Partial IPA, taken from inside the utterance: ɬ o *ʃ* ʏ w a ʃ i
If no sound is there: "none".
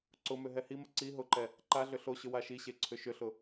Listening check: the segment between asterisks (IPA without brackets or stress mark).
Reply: ɕ